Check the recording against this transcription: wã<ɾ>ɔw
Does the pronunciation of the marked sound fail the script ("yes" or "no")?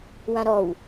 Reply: no